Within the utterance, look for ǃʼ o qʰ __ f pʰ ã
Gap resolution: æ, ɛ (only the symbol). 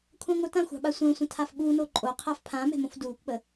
æ